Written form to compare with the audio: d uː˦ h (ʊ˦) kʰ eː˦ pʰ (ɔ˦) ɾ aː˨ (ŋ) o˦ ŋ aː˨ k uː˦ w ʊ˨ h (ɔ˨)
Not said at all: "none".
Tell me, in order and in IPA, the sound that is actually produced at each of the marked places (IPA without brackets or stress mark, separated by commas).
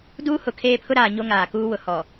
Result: ʊ˨, ʊ˦, ɲ, ɔ˨